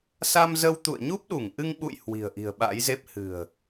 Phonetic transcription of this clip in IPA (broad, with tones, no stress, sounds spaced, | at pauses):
s a˧ m z ə˧ w t̪ ṵ˧˨ ə̯ ɲ u˦˥ p̚ ɗ u˧˩ ŋ ʔ ɨ˧ ŋ ɓ ṵ˧˨ j h w i̤˨˩ ə̯ ʔ i̤˨˩ ə̯ ɓ a̰˧˥ j z e˦˥ p̚ h ɨ̤˨˩ ə̯